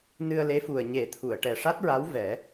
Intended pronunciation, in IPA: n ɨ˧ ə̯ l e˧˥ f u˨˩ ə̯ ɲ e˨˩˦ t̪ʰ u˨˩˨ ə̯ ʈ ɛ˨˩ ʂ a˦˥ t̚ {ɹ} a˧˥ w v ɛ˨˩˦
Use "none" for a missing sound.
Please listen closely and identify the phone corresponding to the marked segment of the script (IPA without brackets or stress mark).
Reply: ɹ